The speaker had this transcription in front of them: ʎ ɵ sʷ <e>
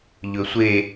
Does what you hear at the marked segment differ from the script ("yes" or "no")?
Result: no